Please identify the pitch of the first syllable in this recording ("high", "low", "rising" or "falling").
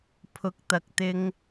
rising